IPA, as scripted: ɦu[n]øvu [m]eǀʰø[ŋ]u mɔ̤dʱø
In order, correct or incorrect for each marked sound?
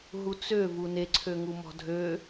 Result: incorrect: t͡s, incorrect: n, correct

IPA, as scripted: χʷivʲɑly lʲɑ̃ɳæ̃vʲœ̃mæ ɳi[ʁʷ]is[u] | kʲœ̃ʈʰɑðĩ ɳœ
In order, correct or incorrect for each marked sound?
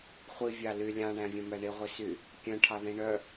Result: correct, incorrect: y

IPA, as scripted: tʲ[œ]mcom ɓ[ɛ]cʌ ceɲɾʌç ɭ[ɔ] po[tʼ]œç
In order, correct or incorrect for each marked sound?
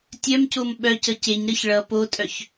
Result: correct, incorrect: œ, incorrect: ʌ, correct

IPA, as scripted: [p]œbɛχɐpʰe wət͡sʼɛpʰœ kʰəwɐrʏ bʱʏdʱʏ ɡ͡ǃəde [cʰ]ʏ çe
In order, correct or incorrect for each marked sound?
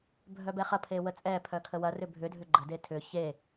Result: incorrect: bʱ, incorrect: tʰ

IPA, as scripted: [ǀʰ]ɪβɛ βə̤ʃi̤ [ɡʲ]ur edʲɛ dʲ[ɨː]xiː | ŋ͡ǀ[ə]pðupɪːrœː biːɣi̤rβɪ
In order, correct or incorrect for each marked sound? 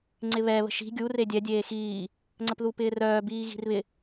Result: incorrect: ŋ͡ǀ, correct, incorrect: eː, correct

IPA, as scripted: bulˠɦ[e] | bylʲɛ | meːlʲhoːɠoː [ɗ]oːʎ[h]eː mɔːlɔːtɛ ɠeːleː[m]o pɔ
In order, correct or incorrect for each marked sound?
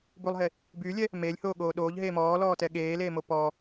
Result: correct, correct, incorrect: ɦ, correct

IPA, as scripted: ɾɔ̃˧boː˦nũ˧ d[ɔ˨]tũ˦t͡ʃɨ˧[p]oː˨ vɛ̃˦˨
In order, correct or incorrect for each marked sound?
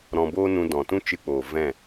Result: incorrect: ɔ̃˨, incorrect: k͡p

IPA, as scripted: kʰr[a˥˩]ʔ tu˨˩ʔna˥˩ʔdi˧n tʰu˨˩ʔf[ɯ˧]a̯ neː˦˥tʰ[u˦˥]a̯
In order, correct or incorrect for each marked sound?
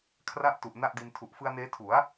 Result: correct, correct, incorrect: u˩˦

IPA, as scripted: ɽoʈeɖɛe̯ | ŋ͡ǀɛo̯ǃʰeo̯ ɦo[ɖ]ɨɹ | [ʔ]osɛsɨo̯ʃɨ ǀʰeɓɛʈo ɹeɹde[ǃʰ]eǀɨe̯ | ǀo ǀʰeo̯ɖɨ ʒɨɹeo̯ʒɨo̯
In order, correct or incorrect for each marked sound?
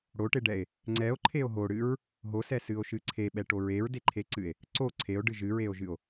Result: incorrect: ɽ, incorrect: ɦ, correct

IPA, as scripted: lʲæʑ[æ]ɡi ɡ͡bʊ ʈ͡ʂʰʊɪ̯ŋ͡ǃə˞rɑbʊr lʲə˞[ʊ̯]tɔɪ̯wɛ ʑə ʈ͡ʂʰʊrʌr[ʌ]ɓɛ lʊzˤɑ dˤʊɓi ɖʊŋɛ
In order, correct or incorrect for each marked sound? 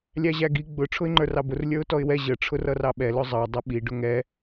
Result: correct, correct, incorrect: ɑ

